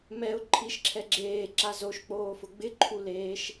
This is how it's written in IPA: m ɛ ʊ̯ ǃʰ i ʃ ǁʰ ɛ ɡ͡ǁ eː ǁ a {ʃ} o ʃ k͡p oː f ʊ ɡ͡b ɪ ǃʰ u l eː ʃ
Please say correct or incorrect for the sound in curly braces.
incorrect